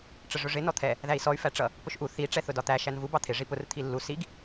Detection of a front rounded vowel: present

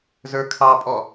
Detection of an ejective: present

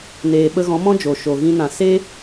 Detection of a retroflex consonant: absent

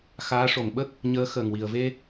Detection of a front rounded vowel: absent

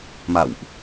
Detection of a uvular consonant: absent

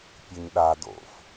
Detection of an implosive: present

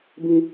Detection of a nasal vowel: present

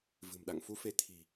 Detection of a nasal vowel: absent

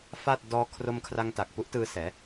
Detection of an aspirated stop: present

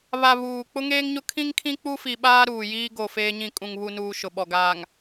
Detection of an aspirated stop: present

